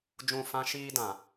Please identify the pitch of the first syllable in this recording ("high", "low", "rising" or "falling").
falling